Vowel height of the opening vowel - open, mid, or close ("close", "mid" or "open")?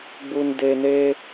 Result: close